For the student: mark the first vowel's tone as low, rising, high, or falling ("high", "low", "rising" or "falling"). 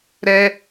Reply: high